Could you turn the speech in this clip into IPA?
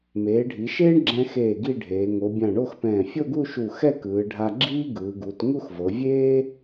m eː˩˧ ɖʱ i˩˧ ʃ eː˥ ɳ ɡ͡ǁ ɛ̃˧ x eː˧˩ ɡ i˥˧ ɖʱ eː˩˧ ŋ o˩˧ bʲ ã˧˩ ɳ o˥˧ x p ɛ̃ː˧˩ fʲ o˥˧ ɡ u˥˧ ʃ u˧˩ x ɛ˥˧ k ɯː˩˧ ɖʱ a˧ ɡ͡ǁ iː˥ ɡ ɯː˩˧ ɡ u˩˧ t ŋ u˥˧ x v ɤ˩˧ vʲ eː˥

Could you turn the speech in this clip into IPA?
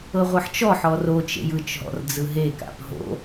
ɤ ʁʷ ɤ ħ t͡ʃ ɔ ħ ɔ r o t͡ʃ ḛ j ɯ t͡ʃ ɦ ɔ̰ r d͡z ɯ ɦ e k a̰ p ɦ o̰

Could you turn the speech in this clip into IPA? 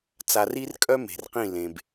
t͡s a˨ r i˦ r kʼ œ˦ m e̤˨ r q ĩ˦˨ l ẽ˨ b

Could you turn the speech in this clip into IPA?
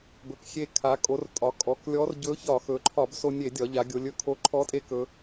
b ɵ˩˧ k xʲ e˧ kʰ a˩˧ kʼ o˩˧ r tʼ ɒ˩˧ kʼ ɔ˩˧ k lʲ ɔ˧˥ r ɟ ɵ˧˥ ç ɒ˧˩˧ x ɵ˩˧ ǃʰ ɒ˧˩˧ b s o˧ nʲ e˧˩˧ dʲ ɒ˩˧ ʎ a˩˧ ɡʲ o˩˧ lʲ ɵ˩˧ kʰ o˧˥ ǃʰ ɔ˧˥ tʼ e˧˥ k ɵ˩˧

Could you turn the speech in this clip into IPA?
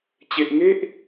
t͡ɕ e˨ ʔ ŋ e˦ ʔ

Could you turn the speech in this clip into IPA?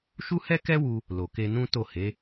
ʃ u˦ h ɛ˦ k ɛ˦ w u˧ | l o˨ k e˧ n ũ˦ t o˦˨ h e˨˦

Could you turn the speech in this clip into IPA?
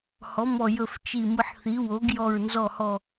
h ɔ˩˧ m ɔ˨˩ j ɵ˨˩ f t͡ʃ i˨˩ m ɯ˨˩ ħ θ i˩˧ w o˩˧ ɡ j ɔ˨˩ ɹ n z ɔ˨˩ h ɔ˨˩

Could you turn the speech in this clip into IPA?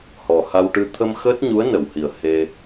h ɔ˨˩ h a˧ w ʈ ɨ˧ t̪ʰ ə˧ m x əː˦˥ t̚ ɲ u˧˥ ə̯ n ə˨˩˨ w h i˨˩ ə̯ h e˧

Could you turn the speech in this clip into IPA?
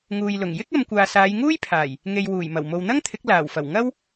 ŋ uː˨ j l ʊ˨˩ ŋ j ɪ˥ k̚ ɐ˧ m kʷ aː˨ s aː˨˧ j ŋ uː˥ j pʰ aː˨˩ j | ŋ e˨ j w uː˨˩ j m ɐ˨˩ w m o˨ w n̪ ɐ˥ ŋ t̪ʰ ɪ˨˥ k̚ l aː˨˩ w f ɐ˨˩ w ŋ ɐ˥ w

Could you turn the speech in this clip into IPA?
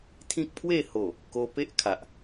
t̪ʰ ĩ˦ k̚ pʰ w e˥˧ h o˨˩ | k o˧ p e˦ ʔ kʰ a˨ ʔ

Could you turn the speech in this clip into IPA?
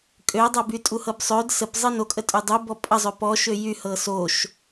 kʼ ø dˤ a b y tʼ u h ɤ b sˤ ø d s ə p zˤ ɤ n o kʼ ə tʼ y dˤ u b ɔ pʼ ə zˤ ø p ɔ ʃ ø j y h ɤ s o ʃ

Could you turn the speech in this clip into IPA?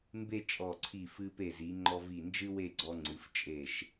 m b e˥˧ t͡ʃʼ ɔ˧˩ ǀʰ i˧˩ f ɨ˧ p e˧˩ z i˩˧ ŋ͡ǃ ɔ˧ v i˧˩ n d͡ʒ ɨ˥ w e˥˧ ɡ͡ǀ ɔ˧ ŋ͡ǀ ɨ˩˧ f t͡ʃʼ e˧˩ ʃ

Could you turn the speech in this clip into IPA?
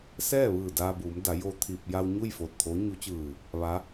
s ɛː˥˨ ʋ ɯː˧˩ d aː˧ b uː˩˧ m d a˩˧ j o˧ t̪ʰ iː˧ p̚ j a˧ w ɲ u˥˨ j f oː˧˩ t̚ t̪ʰ o˧˥ ɲ u˧˥ t͡ɕ ɯː˧˩ | ʋ a˧˥

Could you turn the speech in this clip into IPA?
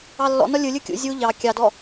ɑ lː ɔ̰ n ɒ lʲ ɯ lʲ ɯ kʲ ṵ zʲ u ʎ ɑ kʲ ɑ d ɔ

